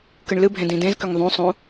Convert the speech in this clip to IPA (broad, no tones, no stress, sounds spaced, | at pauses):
k ɨ ɳ l ɨ bʱ ẽ d ĩ d ẽ z k ʏ ŋ ðˤ ũ sˤ ũ